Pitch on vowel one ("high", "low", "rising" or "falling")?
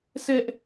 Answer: high